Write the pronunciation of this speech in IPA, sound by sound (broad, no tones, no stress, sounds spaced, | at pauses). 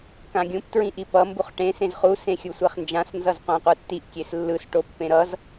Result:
k ã ɡʲ ũ p t ɹ ĩ ʔ i p ʌ m b u χ ʈ ẽ s ẽ z χ u s ẽ xʲ u sʷ ɛ χ n d͡ʒ ã s n z ʌ z qʷ ã qʷ ɯ tː i ʔ kʲ e s lː ɯ s ʈ o pː ẽ ɾ ʌ z